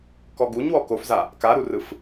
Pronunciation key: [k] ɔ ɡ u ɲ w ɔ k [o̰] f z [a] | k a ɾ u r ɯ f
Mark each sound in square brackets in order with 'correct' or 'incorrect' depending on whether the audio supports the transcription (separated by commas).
correct, incorrect, correct